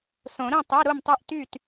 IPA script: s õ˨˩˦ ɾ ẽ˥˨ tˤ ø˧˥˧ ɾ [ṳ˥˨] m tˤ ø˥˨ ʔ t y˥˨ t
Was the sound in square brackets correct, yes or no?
no